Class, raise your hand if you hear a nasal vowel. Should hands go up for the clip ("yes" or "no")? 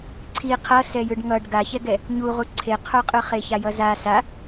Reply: no